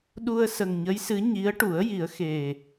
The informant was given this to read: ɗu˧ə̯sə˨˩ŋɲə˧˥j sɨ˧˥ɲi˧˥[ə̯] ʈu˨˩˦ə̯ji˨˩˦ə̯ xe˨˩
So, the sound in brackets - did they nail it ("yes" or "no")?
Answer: yes